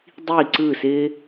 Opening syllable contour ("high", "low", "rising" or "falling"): falling